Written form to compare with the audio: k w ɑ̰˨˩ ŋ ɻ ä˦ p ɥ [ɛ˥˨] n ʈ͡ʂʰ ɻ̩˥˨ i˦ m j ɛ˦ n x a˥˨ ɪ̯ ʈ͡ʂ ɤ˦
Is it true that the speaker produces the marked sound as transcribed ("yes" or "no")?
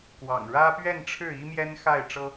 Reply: yes